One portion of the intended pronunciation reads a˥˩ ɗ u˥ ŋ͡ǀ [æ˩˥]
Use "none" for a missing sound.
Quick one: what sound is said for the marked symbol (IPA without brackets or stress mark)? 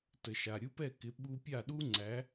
æ˩˥